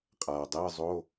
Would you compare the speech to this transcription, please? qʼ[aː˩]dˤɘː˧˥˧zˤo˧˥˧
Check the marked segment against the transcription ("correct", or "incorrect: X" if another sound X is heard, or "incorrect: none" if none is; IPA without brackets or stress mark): correct